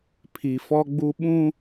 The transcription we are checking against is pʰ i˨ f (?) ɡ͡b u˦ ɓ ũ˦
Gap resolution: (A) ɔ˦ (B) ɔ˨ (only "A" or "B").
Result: A